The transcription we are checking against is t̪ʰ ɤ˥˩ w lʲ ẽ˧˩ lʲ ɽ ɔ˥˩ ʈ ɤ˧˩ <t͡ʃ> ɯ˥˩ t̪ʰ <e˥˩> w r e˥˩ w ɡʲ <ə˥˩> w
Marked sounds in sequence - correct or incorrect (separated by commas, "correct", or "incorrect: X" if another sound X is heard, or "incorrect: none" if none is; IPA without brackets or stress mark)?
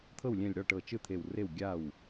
correct, incorrect: e˧˩, incorrect: a˥˩